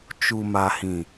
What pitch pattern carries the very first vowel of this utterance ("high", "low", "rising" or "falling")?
low